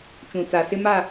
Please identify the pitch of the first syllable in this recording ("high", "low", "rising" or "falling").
low